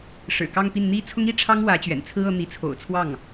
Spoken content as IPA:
ʂ ɻ̩˨˩ k ɑ˥˧ ŋ p i˥˩ n n̪ i˥ t͡sʰ ʊ˥ ŋ i˥ ʈ͡ʂʰ ɑ˥ ŋ w ä˧˥ t͡ɕ ɥ ɛ̰˨˩ n t͡sʰ ɹ̩˥ ɤ˧˥ n̪ i˧˥ t͡sʰ o̰˨˩ ʊ̯ t͡sʰ w ɑ˥˩ ŋ

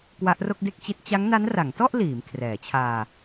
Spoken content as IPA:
k w a˦˥ ʔ r o˥˩ k̚ d e˥˩ k̚ t͡ɕ i˦˥ t̚ t͡ɕ a˦˥ ŋ n a˦˥ n r a˩˦ ŋ t ɔ˥˩ ʔ l iː˩˦ m kʰ r ɛː˩˦ t͡ɕʰ aː˧

